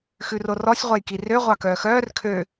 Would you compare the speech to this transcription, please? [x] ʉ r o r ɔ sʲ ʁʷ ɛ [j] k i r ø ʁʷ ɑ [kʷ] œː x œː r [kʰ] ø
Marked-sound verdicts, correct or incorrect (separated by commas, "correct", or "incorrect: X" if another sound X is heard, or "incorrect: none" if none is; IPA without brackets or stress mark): correct, correct, incorrect: k, correct